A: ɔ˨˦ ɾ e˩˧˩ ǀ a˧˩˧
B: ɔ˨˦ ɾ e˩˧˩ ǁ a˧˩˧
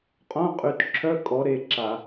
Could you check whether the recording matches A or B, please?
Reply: B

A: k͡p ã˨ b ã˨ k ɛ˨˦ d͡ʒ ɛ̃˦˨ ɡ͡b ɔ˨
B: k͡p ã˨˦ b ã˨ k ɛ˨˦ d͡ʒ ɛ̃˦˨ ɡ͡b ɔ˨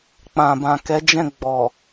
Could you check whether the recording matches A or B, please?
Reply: A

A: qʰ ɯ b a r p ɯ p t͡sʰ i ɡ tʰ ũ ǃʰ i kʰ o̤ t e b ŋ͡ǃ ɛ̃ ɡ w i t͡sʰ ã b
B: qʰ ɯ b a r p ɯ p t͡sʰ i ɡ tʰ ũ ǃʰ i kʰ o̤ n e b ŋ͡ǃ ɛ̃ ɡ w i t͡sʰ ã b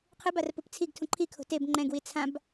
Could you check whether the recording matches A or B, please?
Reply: A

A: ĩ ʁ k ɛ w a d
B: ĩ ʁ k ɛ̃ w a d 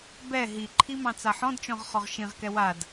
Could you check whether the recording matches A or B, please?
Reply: A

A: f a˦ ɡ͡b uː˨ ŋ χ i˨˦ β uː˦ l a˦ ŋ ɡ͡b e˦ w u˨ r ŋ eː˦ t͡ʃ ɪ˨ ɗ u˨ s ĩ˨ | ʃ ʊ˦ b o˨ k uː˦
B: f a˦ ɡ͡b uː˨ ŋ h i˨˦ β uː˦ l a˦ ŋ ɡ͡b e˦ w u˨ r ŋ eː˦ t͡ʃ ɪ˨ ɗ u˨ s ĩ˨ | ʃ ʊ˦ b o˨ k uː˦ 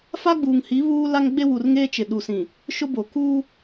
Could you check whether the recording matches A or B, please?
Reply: B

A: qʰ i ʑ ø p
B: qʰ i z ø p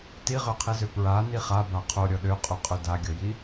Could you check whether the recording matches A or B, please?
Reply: B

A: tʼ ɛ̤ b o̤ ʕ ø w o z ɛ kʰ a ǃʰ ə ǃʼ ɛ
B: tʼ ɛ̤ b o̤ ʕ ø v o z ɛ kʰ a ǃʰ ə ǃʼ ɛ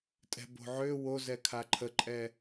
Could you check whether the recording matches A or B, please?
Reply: A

